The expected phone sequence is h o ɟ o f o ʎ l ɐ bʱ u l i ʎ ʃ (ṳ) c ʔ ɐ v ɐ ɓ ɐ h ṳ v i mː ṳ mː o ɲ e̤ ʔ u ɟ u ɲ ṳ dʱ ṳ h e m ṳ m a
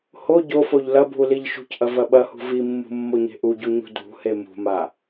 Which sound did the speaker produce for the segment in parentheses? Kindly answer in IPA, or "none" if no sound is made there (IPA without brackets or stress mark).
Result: ṳ